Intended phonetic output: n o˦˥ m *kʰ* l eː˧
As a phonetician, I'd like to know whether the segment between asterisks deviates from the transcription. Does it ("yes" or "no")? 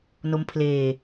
yes